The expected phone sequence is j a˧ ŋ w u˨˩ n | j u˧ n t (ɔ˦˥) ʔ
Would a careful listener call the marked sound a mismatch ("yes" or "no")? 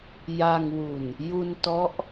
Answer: no